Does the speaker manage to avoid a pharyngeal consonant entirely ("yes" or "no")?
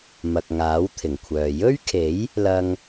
yes